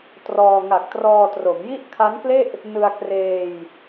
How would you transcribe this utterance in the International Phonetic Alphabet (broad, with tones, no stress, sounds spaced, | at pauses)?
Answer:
t r ɔː˧ ŋ a˨˩ k̚ t r ɔː˧ t r o˩˦ m j i˥˩ ʔ kʰ a˦˥ n k l e˥˩ ʔ | n ɯ˧ a̯ k r eː˧ j